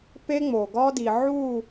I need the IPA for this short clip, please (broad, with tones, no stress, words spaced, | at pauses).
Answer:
pe˦ŋ͡mo˨ɡɒ˦di˨ ʕu˦˨